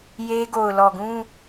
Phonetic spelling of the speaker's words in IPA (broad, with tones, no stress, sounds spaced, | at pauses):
j e˦ ɡ o˨ ʊ̯ l ɔ˨ ɡ ũ˦